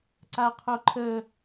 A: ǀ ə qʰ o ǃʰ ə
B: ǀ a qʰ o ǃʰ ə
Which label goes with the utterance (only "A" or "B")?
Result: B